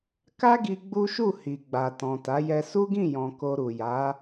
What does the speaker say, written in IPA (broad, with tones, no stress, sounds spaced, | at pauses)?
k a˦ ɡ i˧ ɡ͡b u˦ ʃ u˦˨ h i˨ ɡ͡b a˨ t ɔ̃˨ t a˨˦ j ɛ˧ s u˦ ɡ ĩ˦˨ j ɔ̃˨ k o˧ ɾ u˨ j a˨˦